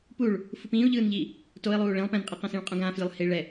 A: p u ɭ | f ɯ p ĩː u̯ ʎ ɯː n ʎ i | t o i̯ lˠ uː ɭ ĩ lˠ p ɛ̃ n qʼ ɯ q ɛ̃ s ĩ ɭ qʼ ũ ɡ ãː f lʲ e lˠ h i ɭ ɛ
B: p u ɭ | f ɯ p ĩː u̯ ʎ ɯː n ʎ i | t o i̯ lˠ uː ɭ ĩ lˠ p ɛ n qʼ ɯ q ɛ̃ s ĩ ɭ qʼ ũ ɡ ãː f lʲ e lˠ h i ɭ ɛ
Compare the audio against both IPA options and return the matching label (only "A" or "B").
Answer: A